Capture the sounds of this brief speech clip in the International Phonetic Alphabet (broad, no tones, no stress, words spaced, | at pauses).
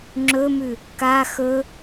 ŋ͡ǁɵmʉ | ka xɵ